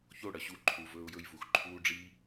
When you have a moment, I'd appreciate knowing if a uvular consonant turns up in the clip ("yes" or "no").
no